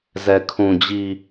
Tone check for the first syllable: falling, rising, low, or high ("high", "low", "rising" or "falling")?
low